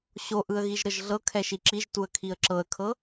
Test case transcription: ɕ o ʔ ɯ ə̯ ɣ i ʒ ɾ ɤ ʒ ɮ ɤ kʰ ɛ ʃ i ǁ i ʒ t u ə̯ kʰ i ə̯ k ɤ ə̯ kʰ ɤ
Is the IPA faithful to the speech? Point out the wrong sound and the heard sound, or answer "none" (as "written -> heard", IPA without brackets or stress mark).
k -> ǁ